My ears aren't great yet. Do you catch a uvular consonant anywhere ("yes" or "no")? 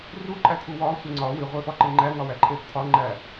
yes